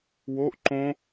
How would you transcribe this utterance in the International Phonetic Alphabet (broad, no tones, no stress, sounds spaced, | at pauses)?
w o ʔ ǃ õ